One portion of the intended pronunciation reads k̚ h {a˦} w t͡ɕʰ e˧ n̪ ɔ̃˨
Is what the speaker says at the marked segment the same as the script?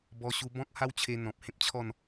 yes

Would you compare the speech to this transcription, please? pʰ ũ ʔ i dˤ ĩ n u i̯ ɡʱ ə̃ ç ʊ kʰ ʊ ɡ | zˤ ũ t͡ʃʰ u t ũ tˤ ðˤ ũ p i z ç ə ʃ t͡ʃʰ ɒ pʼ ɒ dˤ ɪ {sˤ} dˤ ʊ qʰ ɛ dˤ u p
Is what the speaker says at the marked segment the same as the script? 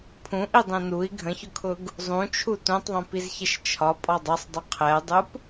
yes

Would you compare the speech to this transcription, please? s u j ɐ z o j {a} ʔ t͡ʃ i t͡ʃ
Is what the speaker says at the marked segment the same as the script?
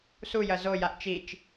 yes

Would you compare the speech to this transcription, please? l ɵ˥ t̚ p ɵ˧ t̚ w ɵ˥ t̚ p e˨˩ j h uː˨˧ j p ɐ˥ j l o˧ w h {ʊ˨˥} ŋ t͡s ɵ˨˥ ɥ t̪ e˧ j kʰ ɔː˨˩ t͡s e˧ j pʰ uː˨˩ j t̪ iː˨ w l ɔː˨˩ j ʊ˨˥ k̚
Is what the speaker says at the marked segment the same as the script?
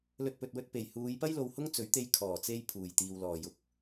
no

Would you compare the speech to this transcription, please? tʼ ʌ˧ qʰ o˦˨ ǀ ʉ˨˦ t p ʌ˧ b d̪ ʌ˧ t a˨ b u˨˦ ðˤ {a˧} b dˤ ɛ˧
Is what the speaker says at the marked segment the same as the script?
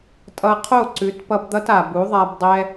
yes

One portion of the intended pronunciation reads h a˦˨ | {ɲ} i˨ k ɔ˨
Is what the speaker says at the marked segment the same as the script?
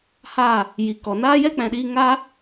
no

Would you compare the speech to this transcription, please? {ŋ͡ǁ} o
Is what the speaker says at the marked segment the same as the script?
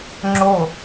yes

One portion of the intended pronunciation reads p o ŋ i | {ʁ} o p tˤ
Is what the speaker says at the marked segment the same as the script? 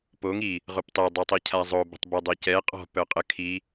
yes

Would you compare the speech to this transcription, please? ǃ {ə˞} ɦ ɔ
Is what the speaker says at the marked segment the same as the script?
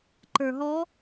yes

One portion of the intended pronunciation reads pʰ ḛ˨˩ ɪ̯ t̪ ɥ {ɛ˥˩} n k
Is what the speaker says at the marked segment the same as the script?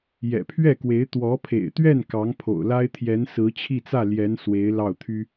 yes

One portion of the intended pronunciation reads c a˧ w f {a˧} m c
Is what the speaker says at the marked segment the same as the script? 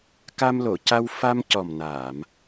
yes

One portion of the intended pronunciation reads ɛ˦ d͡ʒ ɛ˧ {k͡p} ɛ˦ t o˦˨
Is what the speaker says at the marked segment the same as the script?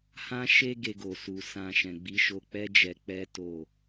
yes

